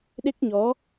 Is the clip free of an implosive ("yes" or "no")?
no